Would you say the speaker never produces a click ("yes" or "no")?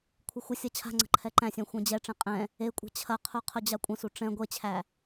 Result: no